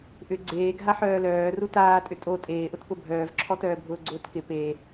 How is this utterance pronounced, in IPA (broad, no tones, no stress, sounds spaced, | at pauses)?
ʔ ʏ ɡ͡ǀ eː ɡʱ a ħ œː l œː r u t aː tʼ ʏ tʼ o tʼ eː ʔ ʊ t p ʊ bʱ œː v ǁʰ ɔ t œː bʱ ʊː ɡ͡ǀ ʊː t k ɪ p e